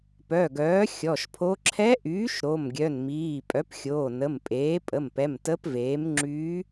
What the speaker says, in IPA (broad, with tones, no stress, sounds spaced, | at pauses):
p œ˩˧˩ ɡ œː˩˥ xʲ ɔ˩˧˩ ʃ pʰ o˧˥ ǁʰ ɛ˧˥ ʔ yː˩˥ ʃ ɾ o˩˧˩ m ɡʲ œ˩˧˩ n m iː˩˧˩ pʼ œ˩˥ p xʲ oː˩˧˩ n ə˩˧˩ m pʼ eː˩˥ pʼ ə˩˧˩ m p ɛ˩˧˩ m t ə˧˥ p v eː˩˥ m ŋ͡ǁ yː˧˥